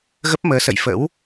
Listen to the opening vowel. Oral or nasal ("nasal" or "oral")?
oral